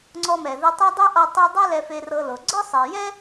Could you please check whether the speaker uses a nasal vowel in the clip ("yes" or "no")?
no